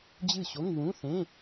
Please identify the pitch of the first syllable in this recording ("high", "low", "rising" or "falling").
falling